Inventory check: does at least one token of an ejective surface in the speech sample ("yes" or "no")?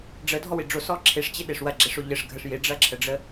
no